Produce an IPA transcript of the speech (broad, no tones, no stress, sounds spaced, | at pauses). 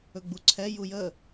ɵ ɡ͡b u ǀʰ ɛ j u j ə